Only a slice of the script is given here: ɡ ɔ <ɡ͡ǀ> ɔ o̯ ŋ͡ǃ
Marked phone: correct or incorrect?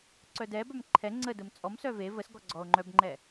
correct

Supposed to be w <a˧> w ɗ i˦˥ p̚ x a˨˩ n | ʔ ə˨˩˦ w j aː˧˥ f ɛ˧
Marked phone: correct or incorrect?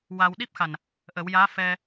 correct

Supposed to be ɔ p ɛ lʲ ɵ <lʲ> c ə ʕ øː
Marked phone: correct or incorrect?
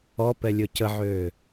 incorrect: none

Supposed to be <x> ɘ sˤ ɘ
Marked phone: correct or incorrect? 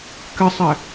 incorrect: k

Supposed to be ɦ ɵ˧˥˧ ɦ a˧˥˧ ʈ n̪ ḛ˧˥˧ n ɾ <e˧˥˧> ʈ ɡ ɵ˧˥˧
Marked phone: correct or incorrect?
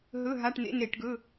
incorrect: e˧˩˧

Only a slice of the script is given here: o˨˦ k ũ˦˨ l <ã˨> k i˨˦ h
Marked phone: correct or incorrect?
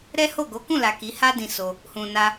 incorrect: a˨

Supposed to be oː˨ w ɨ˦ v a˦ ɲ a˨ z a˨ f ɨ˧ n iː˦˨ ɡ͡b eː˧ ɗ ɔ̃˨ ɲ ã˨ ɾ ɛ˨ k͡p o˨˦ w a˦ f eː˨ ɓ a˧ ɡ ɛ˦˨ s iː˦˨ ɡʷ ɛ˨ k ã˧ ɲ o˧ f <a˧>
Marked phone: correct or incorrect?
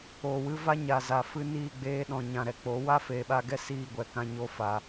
incorrect: a˨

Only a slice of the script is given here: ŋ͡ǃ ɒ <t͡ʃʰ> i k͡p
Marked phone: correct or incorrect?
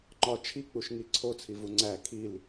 correct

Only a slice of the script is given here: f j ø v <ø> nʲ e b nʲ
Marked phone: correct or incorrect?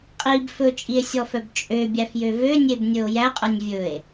correct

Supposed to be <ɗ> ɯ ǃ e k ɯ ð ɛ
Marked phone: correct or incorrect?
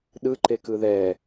correct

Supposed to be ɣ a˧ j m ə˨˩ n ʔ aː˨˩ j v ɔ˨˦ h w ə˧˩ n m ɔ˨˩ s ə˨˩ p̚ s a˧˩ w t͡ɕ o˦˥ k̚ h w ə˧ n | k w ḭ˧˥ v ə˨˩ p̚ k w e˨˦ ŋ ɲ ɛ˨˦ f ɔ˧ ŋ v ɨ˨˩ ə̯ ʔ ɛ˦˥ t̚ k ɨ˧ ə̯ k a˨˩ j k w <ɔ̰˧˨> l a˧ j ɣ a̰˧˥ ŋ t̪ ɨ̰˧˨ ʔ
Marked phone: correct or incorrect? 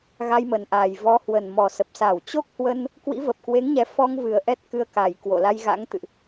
incorrect: o̰˧˨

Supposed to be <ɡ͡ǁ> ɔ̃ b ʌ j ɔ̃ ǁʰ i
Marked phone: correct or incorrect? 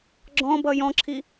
correct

